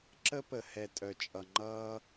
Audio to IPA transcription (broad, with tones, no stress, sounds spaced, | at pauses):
ǁ ə˦ p ə˨ h ɛ˨ tʼ œ˨ t͡ʃʼ ʌ˨ ŋ͡ǃ ʌː˦